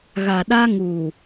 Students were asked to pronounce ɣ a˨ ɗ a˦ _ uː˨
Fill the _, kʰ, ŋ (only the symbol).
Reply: ŋ